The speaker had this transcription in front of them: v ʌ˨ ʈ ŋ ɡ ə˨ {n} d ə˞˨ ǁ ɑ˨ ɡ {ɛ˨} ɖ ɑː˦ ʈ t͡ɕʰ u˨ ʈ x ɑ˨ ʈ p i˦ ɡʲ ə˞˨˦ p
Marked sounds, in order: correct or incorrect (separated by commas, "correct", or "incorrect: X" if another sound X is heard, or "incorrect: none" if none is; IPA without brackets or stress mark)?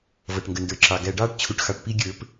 correct, incorrect: æ˨